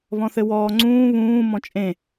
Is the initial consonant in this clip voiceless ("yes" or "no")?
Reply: no